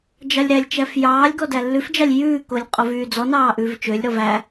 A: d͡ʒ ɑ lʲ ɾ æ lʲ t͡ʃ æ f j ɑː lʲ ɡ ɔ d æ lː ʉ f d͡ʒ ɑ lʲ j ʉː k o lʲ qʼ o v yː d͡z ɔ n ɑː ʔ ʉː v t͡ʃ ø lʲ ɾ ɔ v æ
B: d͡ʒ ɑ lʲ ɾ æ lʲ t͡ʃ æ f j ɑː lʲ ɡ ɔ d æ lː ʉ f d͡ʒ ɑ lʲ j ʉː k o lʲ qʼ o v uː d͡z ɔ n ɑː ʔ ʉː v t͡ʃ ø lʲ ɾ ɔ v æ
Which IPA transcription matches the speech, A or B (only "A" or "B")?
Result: A